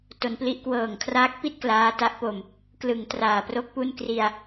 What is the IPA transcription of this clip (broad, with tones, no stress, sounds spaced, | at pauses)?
t o˦˥ n p l i˦˥ ʔ k w ɤː˨˩ ŋ kʰ r aː˦˥ k̚ p i˥˩ t̚ k l aː˦˥ t a˦˥ ʔ p o˧ m | k l ɯ˩˦ ŋ t r aː˨˩ p r o˥˩ k̚ p u˥˩ n k r i˧ a̯